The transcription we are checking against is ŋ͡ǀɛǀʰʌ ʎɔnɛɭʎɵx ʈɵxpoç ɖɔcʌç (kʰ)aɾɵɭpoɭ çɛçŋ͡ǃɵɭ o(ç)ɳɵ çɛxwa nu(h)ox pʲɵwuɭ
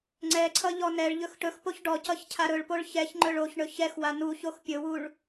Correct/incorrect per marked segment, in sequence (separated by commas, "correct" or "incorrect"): incorrect, correct, incorrect